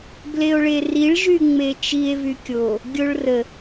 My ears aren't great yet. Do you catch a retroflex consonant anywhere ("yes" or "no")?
yes